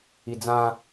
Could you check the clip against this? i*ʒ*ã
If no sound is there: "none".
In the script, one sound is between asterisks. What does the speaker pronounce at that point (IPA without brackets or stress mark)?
d͡z